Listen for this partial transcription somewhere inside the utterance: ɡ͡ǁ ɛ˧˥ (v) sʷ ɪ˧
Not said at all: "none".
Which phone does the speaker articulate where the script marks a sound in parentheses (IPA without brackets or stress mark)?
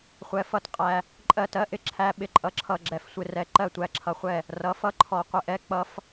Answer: f